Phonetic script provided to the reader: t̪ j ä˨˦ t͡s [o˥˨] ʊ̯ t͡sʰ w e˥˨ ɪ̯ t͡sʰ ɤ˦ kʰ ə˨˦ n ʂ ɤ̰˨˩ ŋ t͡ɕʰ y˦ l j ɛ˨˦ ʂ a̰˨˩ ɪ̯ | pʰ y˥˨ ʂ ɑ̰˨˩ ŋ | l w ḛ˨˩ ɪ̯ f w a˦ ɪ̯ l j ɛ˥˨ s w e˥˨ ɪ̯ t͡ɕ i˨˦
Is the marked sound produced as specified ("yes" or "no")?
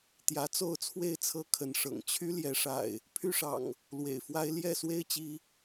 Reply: yes